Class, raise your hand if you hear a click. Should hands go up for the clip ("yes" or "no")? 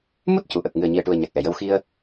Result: no